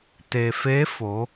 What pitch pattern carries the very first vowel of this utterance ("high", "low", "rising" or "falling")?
low